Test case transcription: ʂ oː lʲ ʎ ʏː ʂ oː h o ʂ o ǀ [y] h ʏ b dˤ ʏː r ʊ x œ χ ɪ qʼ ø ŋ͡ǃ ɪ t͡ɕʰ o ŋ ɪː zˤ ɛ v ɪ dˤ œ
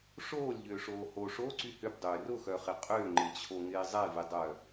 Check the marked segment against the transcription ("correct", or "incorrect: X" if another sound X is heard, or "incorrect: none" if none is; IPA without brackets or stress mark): correct